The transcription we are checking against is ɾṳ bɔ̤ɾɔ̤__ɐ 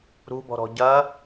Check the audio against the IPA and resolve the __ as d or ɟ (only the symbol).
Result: ɟ